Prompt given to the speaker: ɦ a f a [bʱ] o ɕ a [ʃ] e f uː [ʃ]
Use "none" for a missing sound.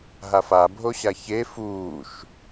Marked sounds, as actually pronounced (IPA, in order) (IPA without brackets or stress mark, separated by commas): bʱ, ç, ʃ